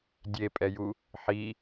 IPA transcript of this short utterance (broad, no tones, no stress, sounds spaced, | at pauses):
dʲ e pʼ ɛ j u | ħ i